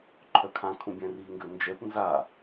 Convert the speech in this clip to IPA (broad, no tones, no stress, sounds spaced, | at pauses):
ǃʰ œ kʰ ã kʰ ũ bʲ ɛ̃ r i ŋ ɡ ø n d͡ʒ ɛ p n z a